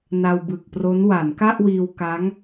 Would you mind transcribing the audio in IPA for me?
na˧wbɯ˨˩k̚pro˦˥n wa˩˦nka˥˩ʔwiː˧w ka˦˥ŋ

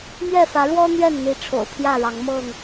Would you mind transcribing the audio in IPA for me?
mɥɛ˥˨ fä˨˦ɻwɔ˦ n̪ɥɛ˥˨nn̪i˨˦ ʈ͡ʂʰo̰˨˩ʊ̯pʰjä˥˨ɻɑ˨˦ŋmɤ˥˨ŋ

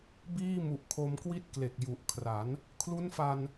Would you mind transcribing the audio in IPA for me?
biː˥˩mu˨˩ʔkʰo˧m kwi˦˥t̚kle˨˩k̚ ju˨˩ʔkʰra˩˦n | kʰlu˦˥nfa˧n

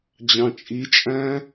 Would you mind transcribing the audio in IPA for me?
d͡ʑɑ̃t͡ʃʼit͡ʃʼæ̃

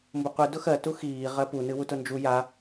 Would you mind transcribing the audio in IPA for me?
mbʊqʷɨ dʊxɜ tuxiː ʁɜpu nɨwutʊnd͡ʒu ja

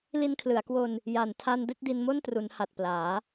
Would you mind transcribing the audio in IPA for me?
li˧nkʰlɯ˩˦a̯kwo˧n | ja˨˩ntʰa˧n dɯ˥˩k̚di˧nmo˥˩ntru˩˦n ha˨˩t̚plaː˩˦

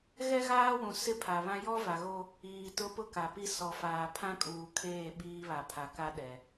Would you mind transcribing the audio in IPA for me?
ɣɛ˦ɣaː˦wũ˨ sɪ˦pʰa˨βã˦ jɔ˦va˨ɣo˦ | iː˨tʊ˦ pʊ˦ka˨pi˦ sɔ˨faː˨ pʰã˦kʼuː˨kʰeː˦˨ ɓiː˦βa˨pʰa˨ka˦ ɗɛ˨

